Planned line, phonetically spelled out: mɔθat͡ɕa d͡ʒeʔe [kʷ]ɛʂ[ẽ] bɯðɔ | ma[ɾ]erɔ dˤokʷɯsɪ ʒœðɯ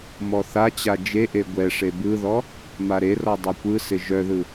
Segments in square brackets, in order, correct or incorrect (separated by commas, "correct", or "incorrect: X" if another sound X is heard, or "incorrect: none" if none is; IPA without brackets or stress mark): incorrect: ɡʷ, incorrect: e, correct